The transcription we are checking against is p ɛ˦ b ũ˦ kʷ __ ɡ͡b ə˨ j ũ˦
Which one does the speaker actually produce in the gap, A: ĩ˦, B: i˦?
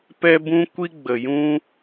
B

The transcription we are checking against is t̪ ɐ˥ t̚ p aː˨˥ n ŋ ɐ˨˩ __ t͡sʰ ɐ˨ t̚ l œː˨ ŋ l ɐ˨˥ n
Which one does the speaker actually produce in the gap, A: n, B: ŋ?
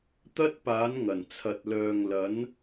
A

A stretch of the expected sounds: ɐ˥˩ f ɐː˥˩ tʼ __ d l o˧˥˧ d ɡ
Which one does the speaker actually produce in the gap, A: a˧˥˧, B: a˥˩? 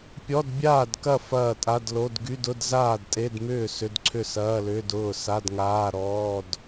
A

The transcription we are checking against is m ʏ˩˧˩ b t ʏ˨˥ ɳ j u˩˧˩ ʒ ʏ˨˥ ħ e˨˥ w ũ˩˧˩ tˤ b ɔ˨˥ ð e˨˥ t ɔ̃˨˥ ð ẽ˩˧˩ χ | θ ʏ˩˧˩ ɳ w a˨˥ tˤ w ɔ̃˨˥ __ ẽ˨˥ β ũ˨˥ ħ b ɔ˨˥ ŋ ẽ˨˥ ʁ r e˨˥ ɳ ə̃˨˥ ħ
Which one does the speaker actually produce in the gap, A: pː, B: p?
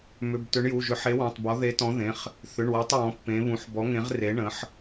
A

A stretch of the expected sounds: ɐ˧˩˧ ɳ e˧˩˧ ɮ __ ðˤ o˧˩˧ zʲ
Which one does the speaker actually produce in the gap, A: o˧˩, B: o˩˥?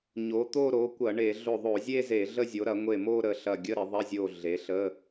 A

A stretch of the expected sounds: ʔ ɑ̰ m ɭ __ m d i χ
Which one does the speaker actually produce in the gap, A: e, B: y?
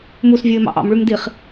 B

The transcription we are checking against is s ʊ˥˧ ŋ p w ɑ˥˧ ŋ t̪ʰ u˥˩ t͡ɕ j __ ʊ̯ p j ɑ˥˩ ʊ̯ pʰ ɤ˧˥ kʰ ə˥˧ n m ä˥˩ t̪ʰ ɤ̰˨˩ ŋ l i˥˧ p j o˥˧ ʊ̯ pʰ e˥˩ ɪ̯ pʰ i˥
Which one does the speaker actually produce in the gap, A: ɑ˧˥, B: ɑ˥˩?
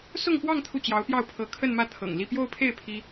A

